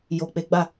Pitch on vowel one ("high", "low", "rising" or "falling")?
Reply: low